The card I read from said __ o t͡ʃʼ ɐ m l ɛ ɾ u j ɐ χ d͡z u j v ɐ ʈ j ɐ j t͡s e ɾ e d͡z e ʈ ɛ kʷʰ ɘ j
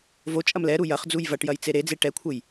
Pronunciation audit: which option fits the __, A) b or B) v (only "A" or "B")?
B